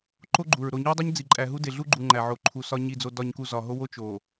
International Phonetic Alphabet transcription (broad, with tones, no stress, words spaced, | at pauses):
ǃo˦ɡ͡ǃu˨ɹ ɾo˨ɲu˦i̯dˤi˦ɲ d͡zi˨ǃʼæ˨ɦu˦ de˨ɮu˦ɡ͡ǃu˨ ŋ͡ǃæ˨ʕo˨ǃʰu˨sɒ˦ ɲi˨d͡zo˨dɒ˨ɲku˨ zɒ˨ɦo˦ wo˦t͡ʃ o˨